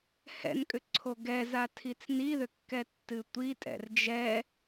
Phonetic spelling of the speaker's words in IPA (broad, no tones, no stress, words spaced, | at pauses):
hɛ̰nkʼʏ ǀʰoɡɛza tʰit͡sniðʏ kːɛtːɨtʷitʼɛ̰r d͡ʒɛ